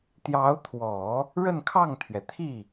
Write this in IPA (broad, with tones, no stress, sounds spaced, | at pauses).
t̪ j ɑ˧˥ ʊ̯ t̪ʰ w ɔ˨˩˦ | ɻ ə˥˧ n kʰ ɑ˥˩ ŋ t̪ʰ ɥ ɛ˩ t̪ʰ i˥˩